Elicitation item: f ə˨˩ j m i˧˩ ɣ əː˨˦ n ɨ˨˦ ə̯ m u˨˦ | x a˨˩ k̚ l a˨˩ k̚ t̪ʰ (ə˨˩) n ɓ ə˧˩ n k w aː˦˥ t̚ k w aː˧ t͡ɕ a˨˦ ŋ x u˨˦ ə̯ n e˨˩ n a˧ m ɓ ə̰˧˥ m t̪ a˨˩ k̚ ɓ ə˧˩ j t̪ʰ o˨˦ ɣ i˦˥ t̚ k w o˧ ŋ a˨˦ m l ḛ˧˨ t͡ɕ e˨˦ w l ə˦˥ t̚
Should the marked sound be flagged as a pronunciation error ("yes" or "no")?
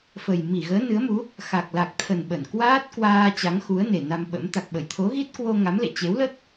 no